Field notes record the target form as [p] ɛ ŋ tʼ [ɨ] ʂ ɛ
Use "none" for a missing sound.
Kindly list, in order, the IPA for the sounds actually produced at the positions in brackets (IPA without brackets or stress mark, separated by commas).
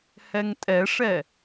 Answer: h, ɛ